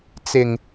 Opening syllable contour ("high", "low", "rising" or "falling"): low